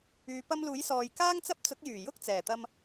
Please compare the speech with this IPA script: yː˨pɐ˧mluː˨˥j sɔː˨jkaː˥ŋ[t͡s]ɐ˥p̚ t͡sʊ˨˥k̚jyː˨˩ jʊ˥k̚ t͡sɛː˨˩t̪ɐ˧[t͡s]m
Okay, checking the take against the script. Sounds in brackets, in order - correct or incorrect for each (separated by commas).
correct, incorrect